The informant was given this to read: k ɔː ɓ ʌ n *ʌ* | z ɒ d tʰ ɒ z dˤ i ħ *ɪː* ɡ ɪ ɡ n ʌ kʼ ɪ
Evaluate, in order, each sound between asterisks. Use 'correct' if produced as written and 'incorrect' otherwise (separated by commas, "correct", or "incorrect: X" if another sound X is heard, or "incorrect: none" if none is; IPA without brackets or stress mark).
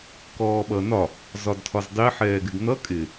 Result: incorrect: ɒ, incorrect: ɛː